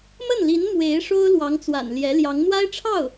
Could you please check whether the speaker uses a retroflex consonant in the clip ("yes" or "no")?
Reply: yes